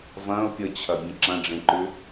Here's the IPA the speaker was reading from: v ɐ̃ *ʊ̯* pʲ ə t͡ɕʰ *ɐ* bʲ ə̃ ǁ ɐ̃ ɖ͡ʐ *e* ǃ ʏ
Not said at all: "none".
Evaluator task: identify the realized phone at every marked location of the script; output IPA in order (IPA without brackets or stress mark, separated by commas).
ʊ̯, ɐ, ẽ